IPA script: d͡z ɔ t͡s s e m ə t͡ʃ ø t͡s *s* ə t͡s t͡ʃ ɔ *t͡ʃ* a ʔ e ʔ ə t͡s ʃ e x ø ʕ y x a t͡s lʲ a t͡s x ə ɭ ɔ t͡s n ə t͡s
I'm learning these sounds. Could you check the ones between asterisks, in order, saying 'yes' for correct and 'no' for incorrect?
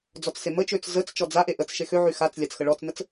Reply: no, no

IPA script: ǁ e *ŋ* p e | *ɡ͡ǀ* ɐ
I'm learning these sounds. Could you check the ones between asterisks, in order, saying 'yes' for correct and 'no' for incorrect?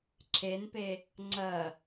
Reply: no, no

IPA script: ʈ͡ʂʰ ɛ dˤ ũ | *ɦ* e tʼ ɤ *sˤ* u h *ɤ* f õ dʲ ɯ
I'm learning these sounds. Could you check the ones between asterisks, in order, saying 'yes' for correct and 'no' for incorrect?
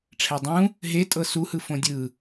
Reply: yes, no, no

